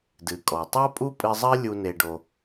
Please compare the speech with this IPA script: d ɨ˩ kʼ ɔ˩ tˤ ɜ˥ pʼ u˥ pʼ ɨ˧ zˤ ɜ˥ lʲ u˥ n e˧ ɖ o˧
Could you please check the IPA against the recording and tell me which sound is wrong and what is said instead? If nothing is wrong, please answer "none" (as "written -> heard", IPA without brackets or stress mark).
none